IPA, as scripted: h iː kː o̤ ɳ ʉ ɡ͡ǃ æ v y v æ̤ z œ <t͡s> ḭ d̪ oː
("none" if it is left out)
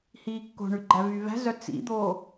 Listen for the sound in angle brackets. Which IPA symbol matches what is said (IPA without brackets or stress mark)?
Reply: t͡s